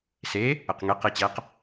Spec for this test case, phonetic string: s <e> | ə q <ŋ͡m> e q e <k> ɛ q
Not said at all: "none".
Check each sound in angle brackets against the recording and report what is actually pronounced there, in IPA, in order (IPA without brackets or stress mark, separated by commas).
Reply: e, ŋ, t͡ɕ